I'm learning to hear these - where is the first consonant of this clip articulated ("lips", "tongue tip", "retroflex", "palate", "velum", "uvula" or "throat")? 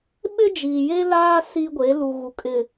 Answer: lips